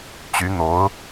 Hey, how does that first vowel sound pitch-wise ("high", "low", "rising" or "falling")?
rising